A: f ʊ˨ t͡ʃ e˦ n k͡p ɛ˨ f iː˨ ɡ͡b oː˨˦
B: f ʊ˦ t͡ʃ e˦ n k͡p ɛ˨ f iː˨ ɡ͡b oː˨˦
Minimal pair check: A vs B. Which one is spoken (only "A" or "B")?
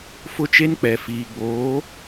B